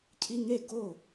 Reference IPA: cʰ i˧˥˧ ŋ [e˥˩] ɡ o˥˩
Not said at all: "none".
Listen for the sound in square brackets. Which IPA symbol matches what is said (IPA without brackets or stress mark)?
e˥˩